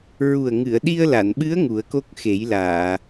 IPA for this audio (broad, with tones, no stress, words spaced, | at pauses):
ɹu˨˩ə̯ŋɨ˨˩˨ə̯ ɗi˧ə̯la˨˩˨nɓɨ˧˥ə̯ ŋu˨˩˦ə̯ko˦˥k̚ xe˨˩˦jlaː˨˩˨